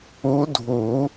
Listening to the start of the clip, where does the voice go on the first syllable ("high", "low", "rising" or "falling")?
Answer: rising